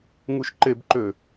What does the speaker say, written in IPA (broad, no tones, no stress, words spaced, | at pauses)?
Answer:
ŋuʃǃebǃø